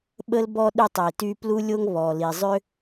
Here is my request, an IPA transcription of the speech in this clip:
ɓə˥lbɔ˥ ɗy˥tˤi˩ty˥ plu˥lʲo˥ŋβɔ˩li˩ zˤø˥

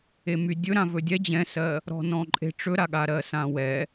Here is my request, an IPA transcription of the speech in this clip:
emydʲɵ ɾãvɵdʲɛ d͡ʑɛ̃sɜ | ɾɔ̤nɔ̃ǃʼe̤ ʈ͡ʂɵɾaɠa ɾɜsãwɛ

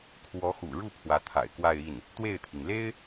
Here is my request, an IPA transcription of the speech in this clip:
kʰwɔ˧˥xṵ˨˩ɻu˥˩ pʰwä˧˥t̪ʰa̰˨˩ɪ̯kwa˥˧ɪ̯ i˥˩n | t̪we˥˩ɪ̯t̪ʰi˩ŋ le˥ɪ̯

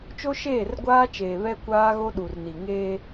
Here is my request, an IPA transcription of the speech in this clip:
t͡ʃo˦ʃeː˦˨rɡʷaː˦t͡ʃeː˨ βɛ˦kʷaː˦ɣo˦ɗu˨r ni˨ŋeː˦

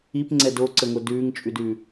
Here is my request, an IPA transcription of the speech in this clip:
ipŋ͡ǀɛ doǀəŋo dʉːŋt͡ʃʼʉdʉː

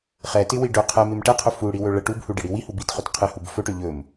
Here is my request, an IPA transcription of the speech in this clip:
χɛtɪwi ɖɵ qʰɛmɪm ʈɛqʰɵ fuɽiwɵ ɭə ʈubhuɖɪɽi wihu bitχɵt qʰɪhub fɵʈɵ ʎɵm

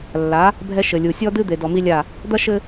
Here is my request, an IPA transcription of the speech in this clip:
lːa˨˦ | bʱɛ˦ʃɘ˨lʲu˨ sʲɔ˦dɨ˦ d̪e˨dɔ˨mi˦lʲa˦˨ | d̪ɐ˦ʃɘ˦

